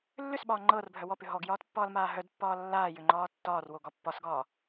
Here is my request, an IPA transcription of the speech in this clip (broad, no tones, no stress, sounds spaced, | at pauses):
lː ʏ s ɓ ɒː ŋ͡ǃ ɤː r bʱ œ w ɔ p ʏ ɦ ɔ ɡ j ɒː t pː ɒː l m aː ɦ œ d pː ɒː lː aː j ʏ ŋ͡ǃ ɒː tː ɒː r w o ɡ ɒ pː ɒ s ɡ ɒː